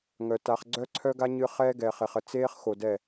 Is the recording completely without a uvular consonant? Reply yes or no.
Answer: no